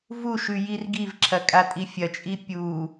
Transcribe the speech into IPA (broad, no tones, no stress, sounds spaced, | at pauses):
v u ʃ ʉ j i r ɡ i v ǁʰ ɐ kʼ a tʼ i fʲ ɐ t͡ʃʼ i pʲ u